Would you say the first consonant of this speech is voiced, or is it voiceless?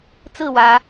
voiceless